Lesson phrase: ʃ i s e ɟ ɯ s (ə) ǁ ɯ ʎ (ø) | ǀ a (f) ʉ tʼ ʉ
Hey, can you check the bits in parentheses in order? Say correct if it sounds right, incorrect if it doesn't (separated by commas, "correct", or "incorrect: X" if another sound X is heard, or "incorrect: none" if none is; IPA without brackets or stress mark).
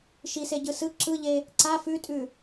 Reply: incorrect: ɯ, incorrect: e, correct